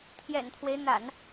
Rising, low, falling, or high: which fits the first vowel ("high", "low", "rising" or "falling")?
low